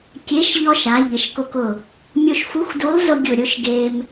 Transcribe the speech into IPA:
kʲe˨˥ʃʎɔ˧ʃa˩˧ ʎɪ˩˧ʃkʊ˧kʊ˧˩ | mʲo˧ʃfu˨˥xdu˨˥lˠzʊ˧ ɡʲʊ˧˩ ɾʲʊ˧ʃ ɡe˧m

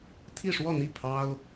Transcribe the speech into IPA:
t̪ʰi˥˧ʂwɔ˥˧n̪i˥˩ pʰɑ˥ʊ̯

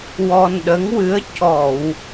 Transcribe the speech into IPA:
wɔ˧nɗə˧˥ŋwɨ˧˥ə̯ cɔ˨˩˨w

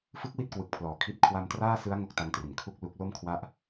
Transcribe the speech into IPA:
fɯ˦˥k̚wi˦˥t̚ kwɯ˨˩k̚pʰlɔː˩˦kʰi˦˥t̚ kʰwa˧mtraː˥˩sɯ˦˥a̯ ŋo˦˥k̚ta˧ŋtri˩˦n kʰu˦˥k̚ lu˦˥k̚ lo˥˩m kʰwa˦˥ʔ

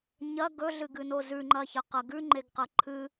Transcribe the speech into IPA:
ɲɐ ɡɵɮɨɡɨno zʉŋ͡ǃɐçɐqɐ ɡʉŋ͡ǃeɡqɐ ǃʰɨ

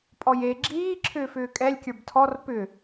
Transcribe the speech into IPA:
pʼɔje ɡ͡ǁiː ǁʰʏːfʏːkʼɛlʲ kʲə˞btʰɔr pʏ

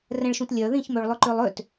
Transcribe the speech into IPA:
rɛ̃ɭʃũtlʲœ ðĩçmøɭlˠʏ ǃølˠøt

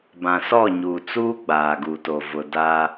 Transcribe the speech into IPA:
bã˨sɔ˦˨ɲuː˨ t͡suː˦ɡ͡baː˨ɡuː˨ to˨vʊ˨ da˦

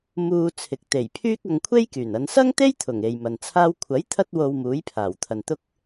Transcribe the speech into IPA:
muː˧t͡sʰɪ˨k̚ t̪e˨˩jpʰyː˥k̚ɐ˧ŋ kʷʰe˥jkyː˨˩nɐ˨˧n sɐ˥ŋt̪e˥jt̪ʰʊ˨˩ŋ e˨jmɐ˨nt͡sʰaː˥w kʷʰɐ˨˥j t̪ʰɐ˥t̚wo˧w muː˨˥jpʰaː˨˩wt̪ʰɐ˨n t̪ʊ˥k̚

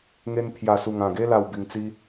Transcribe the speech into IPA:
ŋe˧n pʰja˨˩su˨˩ŋã˨˩ɡe˧ la˥˧wbi˧ŋ t͡si˦

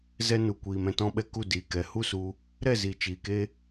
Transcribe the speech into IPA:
zɛ˦nu˨kʷiː˨m ɛ̃˦tɔ̃˦ɓɛ˦ ku˦˨diː˨kɛ˨ hu˦su˧ | ɾɛ˦˨ziː˨ t͡ʃiː˨ke˦

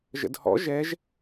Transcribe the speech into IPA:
ʒə̰dhɔ̰ ʒɛʒ

